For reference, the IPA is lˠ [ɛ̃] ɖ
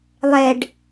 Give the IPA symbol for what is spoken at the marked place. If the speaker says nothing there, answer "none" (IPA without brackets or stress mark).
ɛ